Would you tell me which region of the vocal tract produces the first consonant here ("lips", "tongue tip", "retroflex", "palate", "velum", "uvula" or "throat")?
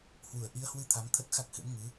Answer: throat